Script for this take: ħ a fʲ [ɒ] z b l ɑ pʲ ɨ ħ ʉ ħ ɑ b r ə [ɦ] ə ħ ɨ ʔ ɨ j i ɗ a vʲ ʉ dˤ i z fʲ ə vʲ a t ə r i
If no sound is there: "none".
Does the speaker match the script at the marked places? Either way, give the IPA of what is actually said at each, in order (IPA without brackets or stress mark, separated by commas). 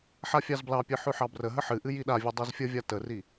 ɑ, ɦ